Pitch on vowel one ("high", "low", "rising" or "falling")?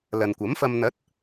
low